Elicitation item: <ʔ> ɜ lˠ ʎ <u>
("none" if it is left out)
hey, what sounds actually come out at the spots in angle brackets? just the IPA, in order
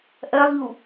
ʔ, u

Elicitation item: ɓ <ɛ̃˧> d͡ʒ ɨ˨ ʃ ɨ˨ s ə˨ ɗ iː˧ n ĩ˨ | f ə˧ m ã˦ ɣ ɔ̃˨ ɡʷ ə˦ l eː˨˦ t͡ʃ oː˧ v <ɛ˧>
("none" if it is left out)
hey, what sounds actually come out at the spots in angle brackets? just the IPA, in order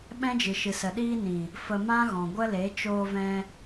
ɛ̃˦, ɛ̃˧

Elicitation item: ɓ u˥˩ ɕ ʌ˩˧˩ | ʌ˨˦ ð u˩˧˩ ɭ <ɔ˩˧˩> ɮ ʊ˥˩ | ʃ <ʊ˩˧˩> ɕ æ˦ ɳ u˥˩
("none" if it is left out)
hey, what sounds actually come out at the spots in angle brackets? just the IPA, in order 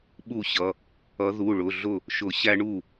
ʊ˩˧˩, ʊ˨˩˦

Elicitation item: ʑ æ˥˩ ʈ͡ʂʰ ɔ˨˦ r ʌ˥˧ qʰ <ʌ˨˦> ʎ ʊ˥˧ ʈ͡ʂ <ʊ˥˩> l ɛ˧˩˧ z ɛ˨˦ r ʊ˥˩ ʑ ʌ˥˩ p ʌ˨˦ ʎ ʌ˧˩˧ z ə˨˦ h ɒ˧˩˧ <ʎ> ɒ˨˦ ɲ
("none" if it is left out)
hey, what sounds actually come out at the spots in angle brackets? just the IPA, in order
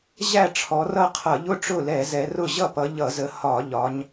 ʌ˧˩˧, ʊ˥˩, ʎ

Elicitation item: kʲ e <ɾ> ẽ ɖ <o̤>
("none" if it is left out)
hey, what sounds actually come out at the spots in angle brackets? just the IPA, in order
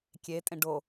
tʼ, o

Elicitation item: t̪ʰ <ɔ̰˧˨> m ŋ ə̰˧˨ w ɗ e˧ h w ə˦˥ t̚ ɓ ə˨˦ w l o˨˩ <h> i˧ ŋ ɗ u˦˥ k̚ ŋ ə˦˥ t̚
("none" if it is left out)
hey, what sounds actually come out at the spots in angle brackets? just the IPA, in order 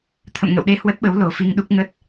ə̰˧˨, f

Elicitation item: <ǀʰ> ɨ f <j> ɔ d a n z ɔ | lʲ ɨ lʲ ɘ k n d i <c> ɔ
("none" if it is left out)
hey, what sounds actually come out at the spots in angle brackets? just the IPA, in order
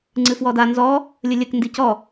ŋ͡ǀ, w, c

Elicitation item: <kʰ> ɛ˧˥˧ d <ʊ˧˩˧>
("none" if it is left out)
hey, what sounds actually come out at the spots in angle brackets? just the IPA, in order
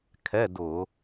kʰ, ʊ˧˩˧

